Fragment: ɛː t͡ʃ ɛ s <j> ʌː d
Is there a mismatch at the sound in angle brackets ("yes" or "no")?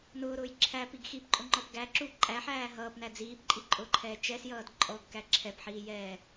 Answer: no